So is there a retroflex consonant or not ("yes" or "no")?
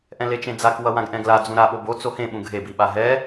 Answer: no